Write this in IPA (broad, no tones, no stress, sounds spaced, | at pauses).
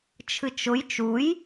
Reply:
t͡ʃʰ ɨ t͡ʃ ʊ j t͡ʃ u j